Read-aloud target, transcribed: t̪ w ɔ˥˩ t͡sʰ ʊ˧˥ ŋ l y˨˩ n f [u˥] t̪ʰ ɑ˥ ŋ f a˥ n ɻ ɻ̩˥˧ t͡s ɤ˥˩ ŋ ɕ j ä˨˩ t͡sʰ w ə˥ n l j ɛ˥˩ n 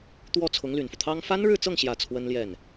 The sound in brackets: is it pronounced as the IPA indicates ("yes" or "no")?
no